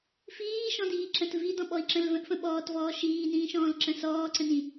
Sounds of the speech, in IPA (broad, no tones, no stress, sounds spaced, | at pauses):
f iː ʃ ɔ̃ d iː ǁ ə̃ t v i d ɔ̃ ɓ ɔ i̯ ǁ ə̃ l v ə̃ ʔ f ə̃ ɓ ɔː t v ɔː ʃ iː n ĩː ʃ ɔ̃ː l ǁ ə̃ s ɔː ǀ ə̃ n ĩ